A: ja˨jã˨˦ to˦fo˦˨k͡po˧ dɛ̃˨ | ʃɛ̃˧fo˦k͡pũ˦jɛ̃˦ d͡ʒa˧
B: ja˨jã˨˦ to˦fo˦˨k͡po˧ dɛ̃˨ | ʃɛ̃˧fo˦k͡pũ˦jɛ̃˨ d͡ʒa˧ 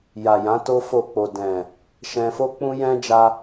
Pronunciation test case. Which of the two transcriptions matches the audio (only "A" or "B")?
A